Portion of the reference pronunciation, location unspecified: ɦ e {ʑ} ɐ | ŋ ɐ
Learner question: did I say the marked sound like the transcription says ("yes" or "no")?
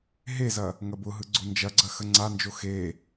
no